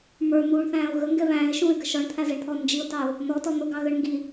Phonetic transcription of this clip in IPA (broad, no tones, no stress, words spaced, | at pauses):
mə˞n̪uːɳθæ̃ːʊ̯ ɣəŋɡɛ βæ̃ːɪ̯ʃũːɪ̯ɡə ʃɔɳt̪ʰæzɛɳt̪ʰɔ nd͡ʒiʊ̯tɑʊ̯ | nɔtɔ n̪ʊɡɑɣəɳ ŋɡi